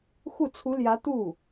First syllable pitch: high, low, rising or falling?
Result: falling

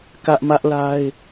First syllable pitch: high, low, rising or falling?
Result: high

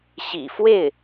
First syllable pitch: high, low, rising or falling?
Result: low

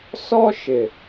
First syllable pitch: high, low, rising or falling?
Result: high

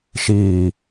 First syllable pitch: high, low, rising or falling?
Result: low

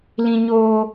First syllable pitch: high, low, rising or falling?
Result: high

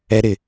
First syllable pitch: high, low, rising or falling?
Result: high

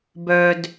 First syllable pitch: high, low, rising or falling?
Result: low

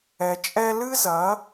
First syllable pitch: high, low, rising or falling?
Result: low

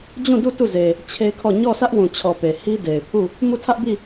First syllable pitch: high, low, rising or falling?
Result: falling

